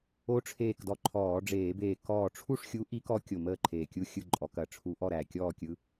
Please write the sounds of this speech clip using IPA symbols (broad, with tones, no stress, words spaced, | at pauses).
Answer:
o˧˥ʈ͡ʂʰeː˧˩kdɔ˧˩ ǃʰɔː˧˩˧ɖ͡ʐeː˧˩˧beː˧˩ kɔː˧˩ʈ͡ʂʰu˥˨ʂxʲu˧˥ ʔi˧˥kɔ˧˥ kʲo˧˩məː˥˨ǃʰeː˧˩kʲu˥˨ xʲɯ˥˨ǃʼɔ˧˩˧ kɐ˧˩ʈ͡ʂʰu˧˥ʔɔ˥˨ɾæ˧˩ kʲɔː˥˨kʲɯ˧˥